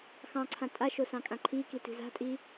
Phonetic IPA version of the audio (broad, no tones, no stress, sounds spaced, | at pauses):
x ɑ̃ ǀʰ ã tʼ a ʃ o s ɑ̃ kʼ ã ǃʰ i k i t i̤ z a̤ tʼ i